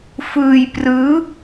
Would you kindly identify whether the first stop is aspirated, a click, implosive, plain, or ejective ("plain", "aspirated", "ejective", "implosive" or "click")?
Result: plain